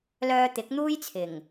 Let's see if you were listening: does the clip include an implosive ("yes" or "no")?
no